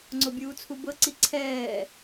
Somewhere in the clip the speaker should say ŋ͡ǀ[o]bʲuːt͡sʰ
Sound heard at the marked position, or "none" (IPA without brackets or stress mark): o